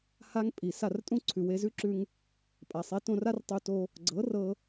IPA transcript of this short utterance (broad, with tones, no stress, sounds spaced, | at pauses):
h a˦ ŋ pʼ i˨ s a˦˨ r tʼ ũ˦ ǀʰ ʉ˨ w e˧ z ʉ˦ ǁ ʉ˧ ŋ | pʼ a˨ sˤ e˨˦ t õ˧ r a˦ r tˤ u˧ t o˧ | ɡ͡ǀ ɤ˨˦ r ɤ˧